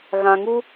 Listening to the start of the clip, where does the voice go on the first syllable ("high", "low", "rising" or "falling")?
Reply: low